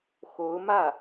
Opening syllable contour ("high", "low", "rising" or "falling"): rising